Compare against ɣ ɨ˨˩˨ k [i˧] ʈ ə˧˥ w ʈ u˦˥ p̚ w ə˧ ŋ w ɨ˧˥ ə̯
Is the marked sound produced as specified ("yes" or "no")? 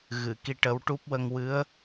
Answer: yes